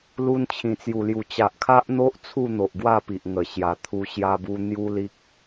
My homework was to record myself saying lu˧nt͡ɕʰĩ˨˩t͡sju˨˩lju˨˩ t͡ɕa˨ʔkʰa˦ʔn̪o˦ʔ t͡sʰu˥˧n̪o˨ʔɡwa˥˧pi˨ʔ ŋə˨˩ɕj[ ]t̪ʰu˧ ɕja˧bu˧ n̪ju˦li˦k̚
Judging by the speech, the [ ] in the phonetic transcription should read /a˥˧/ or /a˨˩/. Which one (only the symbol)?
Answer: a˨˩